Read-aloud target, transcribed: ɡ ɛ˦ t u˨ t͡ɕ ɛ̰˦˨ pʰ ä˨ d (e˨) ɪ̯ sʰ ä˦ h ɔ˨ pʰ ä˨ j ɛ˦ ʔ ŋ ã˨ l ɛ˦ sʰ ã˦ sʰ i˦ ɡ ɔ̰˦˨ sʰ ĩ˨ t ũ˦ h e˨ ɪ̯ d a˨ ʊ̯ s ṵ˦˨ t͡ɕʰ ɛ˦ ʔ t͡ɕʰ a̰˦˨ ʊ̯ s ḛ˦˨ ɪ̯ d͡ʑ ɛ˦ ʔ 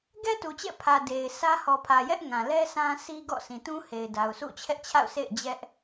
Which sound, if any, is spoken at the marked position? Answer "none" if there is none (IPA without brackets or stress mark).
e˨